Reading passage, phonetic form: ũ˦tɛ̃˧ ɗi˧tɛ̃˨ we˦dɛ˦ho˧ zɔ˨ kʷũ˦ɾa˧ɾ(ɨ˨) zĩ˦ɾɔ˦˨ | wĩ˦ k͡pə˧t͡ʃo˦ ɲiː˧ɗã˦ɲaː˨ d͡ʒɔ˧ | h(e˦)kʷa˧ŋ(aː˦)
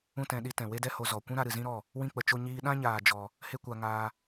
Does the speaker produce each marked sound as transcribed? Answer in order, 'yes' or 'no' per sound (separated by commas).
yes, yes, no